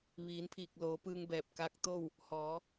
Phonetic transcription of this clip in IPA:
ʋ iː˩˧ n pʰ iː˧˩ k̚ l oː˩˧ p ɯː˧ ŋ b ɛː˧˩ p̚ k aː˧˥ k̚ t̪ oː˥˨ w | h ɔː˩˧

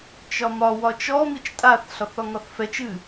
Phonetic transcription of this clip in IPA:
t͡ʃ ɒ m ɒ w ɒ t͡ʃ ɔ m i t͡ʃ tʼ a θ ɬ ɒ θ ɒ ŋ ɒ θ f ɛ t͡ʃ ɨ

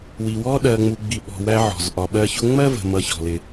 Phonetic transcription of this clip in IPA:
w i˨ w ɔ˦ ɗ ɜ˨ ŋ͡m u˨ ɡ͡b i˨ ɓ ɔ̤˨ w æ˦ ʕ ɔ̤˩ z ʔ ɒ˨ ɓ ɜ˦ ç ʊ˥ ŋ͡m ɜ˥ v ə̤˨ m ʌ˦ ç ɔ̤˨ l ɪ˨

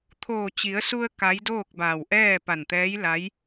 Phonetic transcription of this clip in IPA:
t̪ʰ oː˧˩ t͡ɕ i˩˧ ə̯ s u˧ ə̯ k a˧˥ j d oː˥˨ k̚ b a˧˩ w ʔ ɛː˥˨ p a˧˩ n t̪ ɛː˧˥ j l a˧˥ j

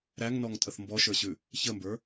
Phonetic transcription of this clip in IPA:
ɾ æ ŋ n ɔ ŋ tʼ ə θ m b ɔ ʃ ə˞ ɕ ʉ | ç ə m b ə˞

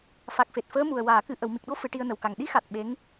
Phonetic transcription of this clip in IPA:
f a˨˩ k̚ f e˨˩ t̚ f əː˧˥ m u˨˩ ə̯ w aː˨˩˨ k ɨ˨˩ ʔ ə˨˩˨ w m i˨˩ k̚ ɗ o˧˥ f ɨ˨˩˦ ʈ i˧ ə̯ n ə˨˩ w k a˨˩ ŋ ɗ i˧˥ x a˨˩ t̚ ɓ e˧˥ ŋ

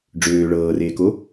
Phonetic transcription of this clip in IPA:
ɖ͡ʐ øː ɭ ɤː r eː k o

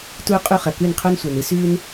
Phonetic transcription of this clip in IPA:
t uː˧ qʼ u˧ χ ɐ˩ k ʉ˥˩ n qʰ o˥ n sʷ ɐː˩ n ɨ˧ s ʉː˧ n

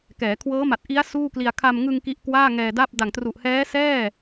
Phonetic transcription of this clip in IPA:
k ɛː˩˦ kʰ w ɤː˦˥ m a˨˩ t̚ ʔ i˦˥ a̯ s uː˥˩ k l i˧ a̯ kʰ a˧ m ŋ ɯ˧ ŋ k i˦˥ ʔ k w aː˥˩ ŋ ɛː˧ d a˥˩ p̚ d a˨˩ ŋ t r u˨˩ ʔ h ɛː˦˥ s ɛː˥˩

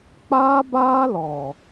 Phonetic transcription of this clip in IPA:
k͡p aː˦ b aː˦ l ɔ˨

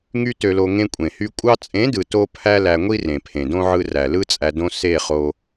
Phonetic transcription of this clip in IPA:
ŋ y˦ t ø˧ l o˧ ŋ ẽ˧ kʷʼ ẽ˨ h y˧ kʷʼ ɑ˧ t͡sʼ ẽ˨˦ d ɯ˨ t o˦ pʰ æ˦ l æ˧ ŋʷ i˦ r ẽ˨ pʰ ẽ˨ d õ˦ ʕ ɯ˧ r æ˨ l ɯ˦ t͡sʼ æ˧ d õ˦ s e˦˨ χ o˧

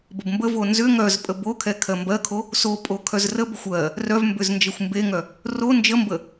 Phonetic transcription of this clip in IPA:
b ə b m b ə v o n z ʏ ŋ œ z pʼ ə b o kʰ ɛ kʰ ɜ m b ɜ kʰ o | s o pʼ o kʰ œ z r ə b ə xʷ ɜ | r œ v m b ʏ z n d͡ʒ ə xʷ m b e ŋ œ | r o n d͡ʒ ə m b ə

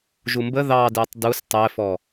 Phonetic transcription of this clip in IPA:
ʒ u m b ə ð ɑ d ɛ tˤ d u s tˤ ɛ f ɔ

